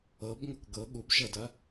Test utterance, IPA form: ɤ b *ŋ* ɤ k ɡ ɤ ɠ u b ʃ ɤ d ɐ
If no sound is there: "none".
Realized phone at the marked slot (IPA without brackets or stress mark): ŋ